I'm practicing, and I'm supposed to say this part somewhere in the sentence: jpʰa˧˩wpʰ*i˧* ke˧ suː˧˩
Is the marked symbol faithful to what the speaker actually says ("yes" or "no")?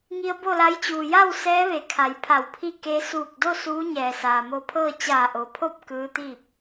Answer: no